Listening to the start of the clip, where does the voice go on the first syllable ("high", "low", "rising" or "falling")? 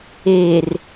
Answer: low